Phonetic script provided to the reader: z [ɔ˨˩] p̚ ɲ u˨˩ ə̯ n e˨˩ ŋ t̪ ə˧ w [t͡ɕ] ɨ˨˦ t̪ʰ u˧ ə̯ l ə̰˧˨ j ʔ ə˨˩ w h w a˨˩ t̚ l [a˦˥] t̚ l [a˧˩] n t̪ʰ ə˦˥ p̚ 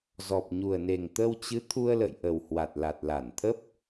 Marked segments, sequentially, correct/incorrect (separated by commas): correct, correct, incorrect, correct